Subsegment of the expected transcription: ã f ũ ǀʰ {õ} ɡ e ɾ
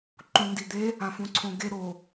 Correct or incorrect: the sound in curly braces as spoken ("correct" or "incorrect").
correct